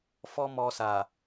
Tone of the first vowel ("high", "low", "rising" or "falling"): high